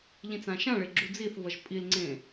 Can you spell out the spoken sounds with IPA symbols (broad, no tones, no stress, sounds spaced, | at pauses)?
ʎ ĩ t͡s ã ʃ ã ɭ e ɡ͡ǁ u d͡z i θ v ʌ ʒ pʼ i l ŋ͡ǀ ẽ